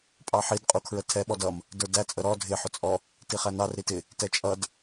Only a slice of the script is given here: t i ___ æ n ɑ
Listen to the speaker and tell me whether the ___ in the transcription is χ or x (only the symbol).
χ